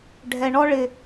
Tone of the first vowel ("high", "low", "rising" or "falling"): low